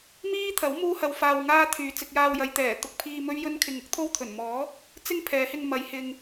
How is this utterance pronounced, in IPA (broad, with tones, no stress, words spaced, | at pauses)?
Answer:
miː˥t̪ʰɐ˨˥w muː˥hɐ˧wfaː˧w ŋaː˥t̪ʰyː˨ t͡sɪ˧k̚jaː˧wjɐ˨˧j t̪ɛː˨˩ t̪ʊ˨k̚pʰiː˨ mɵ˥ɥjɵ˥nkʰɪ˧ŋ ʊ˥k̚t̪ʰo˥wt̪ʰɵ˨˩n mɔː˨˥ | t͡sɪ˥ŋpʰɛː˨˧hɪ˧ŋ mɐ˨˧j hɪ˧ŋ